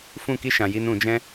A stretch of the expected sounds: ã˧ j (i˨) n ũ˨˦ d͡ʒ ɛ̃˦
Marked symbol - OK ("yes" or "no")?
no